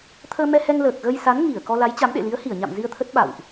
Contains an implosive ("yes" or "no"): yes